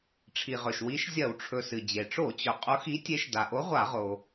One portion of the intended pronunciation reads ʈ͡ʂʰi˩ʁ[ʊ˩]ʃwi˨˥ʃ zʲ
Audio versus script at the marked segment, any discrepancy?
yes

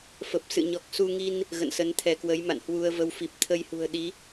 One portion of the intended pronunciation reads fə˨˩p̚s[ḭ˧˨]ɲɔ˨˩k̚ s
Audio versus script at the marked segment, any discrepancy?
yes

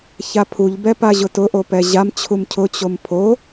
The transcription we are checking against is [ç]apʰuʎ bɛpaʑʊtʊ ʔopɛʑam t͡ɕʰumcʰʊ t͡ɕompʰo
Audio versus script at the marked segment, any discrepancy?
no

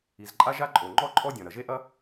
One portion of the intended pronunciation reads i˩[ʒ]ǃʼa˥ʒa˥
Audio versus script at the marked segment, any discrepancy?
yes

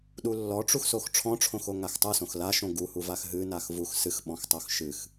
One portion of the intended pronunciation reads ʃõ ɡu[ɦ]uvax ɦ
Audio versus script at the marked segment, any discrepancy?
yes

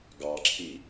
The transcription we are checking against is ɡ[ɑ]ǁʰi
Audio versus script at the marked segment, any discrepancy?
no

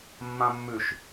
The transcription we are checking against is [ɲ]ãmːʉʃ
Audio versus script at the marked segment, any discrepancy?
yes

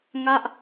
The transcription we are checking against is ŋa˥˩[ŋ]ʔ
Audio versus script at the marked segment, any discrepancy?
yes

